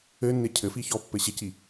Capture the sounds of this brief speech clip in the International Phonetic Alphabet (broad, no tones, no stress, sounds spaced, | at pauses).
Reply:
ɘ nː ɪ cʰ ɘ f i ç ɔ pː ɘ ɕ ɪ c i